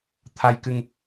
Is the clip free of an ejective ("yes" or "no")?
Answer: yes